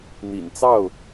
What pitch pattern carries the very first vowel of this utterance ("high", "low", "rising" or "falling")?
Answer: low